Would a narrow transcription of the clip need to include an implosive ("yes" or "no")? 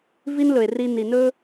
no